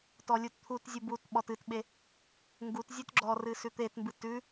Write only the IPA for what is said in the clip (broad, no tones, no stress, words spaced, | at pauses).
tɔlʲutt̪ʰutzʲu but ɓɔtɨtɓe | ŋɡutzʲʉt ɡ͡ǁɔrɨ sʉt̪etmbɨ tʉ